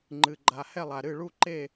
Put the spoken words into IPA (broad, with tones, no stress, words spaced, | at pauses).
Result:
ŋ͡ǃɨ˨ɡ͡ǃa˨hɛ˥˨ lˠa˨ɾɨ˥˨ ɭu˥˨ǃe˥˨